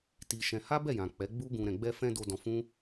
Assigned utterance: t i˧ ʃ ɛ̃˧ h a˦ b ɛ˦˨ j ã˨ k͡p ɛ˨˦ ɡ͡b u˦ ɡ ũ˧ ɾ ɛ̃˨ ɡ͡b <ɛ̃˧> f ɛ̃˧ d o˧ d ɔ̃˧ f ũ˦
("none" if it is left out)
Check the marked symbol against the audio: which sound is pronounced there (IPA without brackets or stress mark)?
ɛ˧